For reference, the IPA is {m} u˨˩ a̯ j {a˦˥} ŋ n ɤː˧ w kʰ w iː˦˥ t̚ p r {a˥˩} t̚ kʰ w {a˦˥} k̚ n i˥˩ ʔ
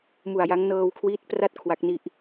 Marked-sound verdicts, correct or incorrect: correct, correct, correct, correct

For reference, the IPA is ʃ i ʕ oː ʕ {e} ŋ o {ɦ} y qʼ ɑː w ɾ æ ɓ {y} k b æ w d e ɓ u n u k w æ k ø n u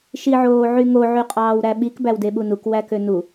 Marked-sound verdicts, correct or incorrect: incorrect, incorrect, incorrect

